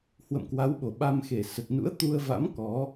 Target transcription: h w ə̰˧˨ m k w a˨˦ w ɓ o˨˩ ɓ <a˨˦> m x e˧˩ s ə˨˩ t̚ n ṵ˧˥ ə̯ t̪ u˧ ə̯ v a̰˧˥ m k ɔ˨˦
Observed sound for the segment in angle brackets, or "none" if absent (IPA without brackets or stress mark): a˧